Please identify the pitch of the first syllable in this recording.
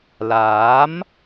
rising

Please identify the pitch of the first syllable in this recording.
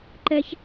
high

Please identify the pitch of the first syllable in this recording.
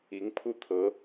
rising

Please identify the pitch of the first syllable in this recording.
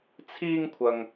high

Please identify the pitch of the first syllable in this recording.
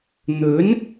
rising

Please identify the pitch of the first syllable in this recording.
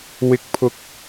high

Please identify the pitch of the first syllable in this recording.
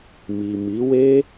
low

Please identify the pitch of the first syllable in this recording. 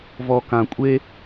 low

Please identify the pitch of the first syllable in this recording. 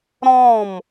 falling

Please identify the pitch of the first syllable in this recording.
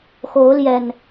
rising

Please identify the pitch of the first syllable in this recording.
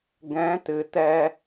rising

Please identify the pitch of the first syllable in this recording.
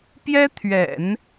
high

